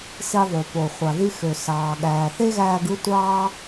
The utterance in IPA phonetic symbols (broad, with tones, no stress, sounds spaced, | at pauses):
s i˧ ðˤ y˩ p o˩ χʷ ɑ˩ ð y˧ x ø˩ s ɑː˩ ɠ æː˩ θ e˥ ɣ æː˧ ɡ ɯ˥ tʷ ɑː˥